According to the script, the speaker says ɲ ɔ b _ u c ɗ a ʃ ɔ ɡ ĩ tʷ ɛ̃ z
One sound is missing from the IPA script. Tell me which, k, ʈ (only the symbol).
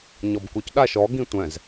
k